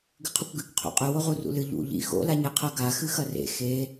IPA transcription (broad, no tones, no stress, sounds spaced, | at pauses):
ɡ ɨ qʰ u kʷ ɡ ɨ k qʰ o̰ qʼ ɵ w o ʁ u r ṵ l ɨ ʎ ṵ ʎ ḭ x o̰ l a ɲ e qʰ ɐ ɡ a x ɨ x ɐ r ḛ x e